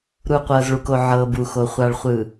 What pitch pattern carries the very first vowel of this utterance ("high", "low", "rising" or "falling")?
low